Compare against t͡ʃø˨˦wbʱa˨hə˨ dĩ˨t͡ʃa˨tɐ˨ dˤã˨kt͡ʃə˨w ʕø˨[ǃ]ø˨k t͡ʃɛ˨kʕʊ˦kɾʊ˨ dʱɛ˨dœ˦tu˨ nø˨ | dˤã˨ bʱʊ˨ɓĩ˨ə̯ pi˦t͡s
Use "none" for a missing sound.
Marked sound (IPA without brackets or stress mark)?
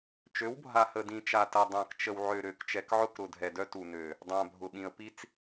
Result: ɾ